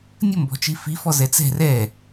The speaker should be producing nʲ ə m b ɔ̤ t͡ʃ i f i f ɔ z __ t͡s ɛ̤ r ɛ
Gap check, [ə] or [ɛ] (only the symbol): ɛ